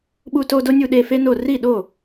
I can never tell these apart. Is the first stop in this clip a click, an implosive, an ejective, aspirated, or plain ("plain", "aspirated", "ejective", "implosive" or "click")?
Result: implosive